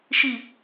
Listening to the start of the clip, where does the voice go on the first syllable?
low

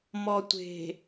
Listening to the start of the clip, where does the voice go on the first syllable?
low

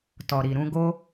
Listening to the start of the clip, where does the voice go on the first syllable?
low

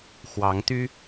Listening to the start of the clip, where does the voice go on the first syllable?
rising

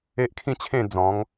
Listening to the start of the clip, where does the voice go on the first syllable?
high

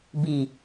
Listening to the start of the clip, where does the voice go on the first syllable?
low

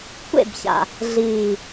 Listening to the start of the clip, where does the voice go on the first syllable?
falling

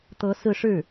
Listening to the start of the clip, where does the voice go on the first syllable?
rising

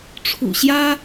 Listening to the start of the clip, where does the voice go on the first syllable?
low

